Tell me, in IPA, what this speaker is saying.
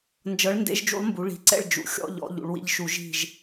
nd͡ʒɤ˨˥ɭndḛ˨˥ʒd͡ʒṵ˨˥lˠmbu˩˧ ɭi̤˩˧ǀɛ̰˥˨ɭ d͡ʒṵ˨˥ xʲɔ̰˧ʎɔ̰˩˧ ʎṵ˩˧ɭwḭ˧ʎʃu˧˩˧ ʒi̤˥˨ʒ

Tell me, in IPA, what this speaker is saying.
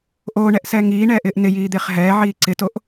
ʔoːɳɛʔsɛː ŋiːɳɛːʔɪːʔ nɪjiːd̪ɪːχ ɦɛːʕiː ǀɪtoʔ

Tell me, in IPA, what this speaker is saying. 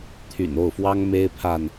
t̪ʰy̰˨˩no˥˨ʊ̯fwɑ˦ŋ me˦ɪ̯pʰa˨n

